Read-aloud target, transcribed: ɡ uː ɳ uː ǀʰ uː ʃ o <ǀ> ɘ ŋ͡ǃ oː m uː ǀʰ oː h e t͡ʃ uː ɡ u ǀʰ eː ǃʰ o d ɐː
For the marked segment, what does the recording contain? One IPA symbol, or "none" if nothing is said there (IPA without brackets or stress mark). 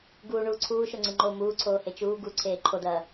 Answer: ŋ͡ǀ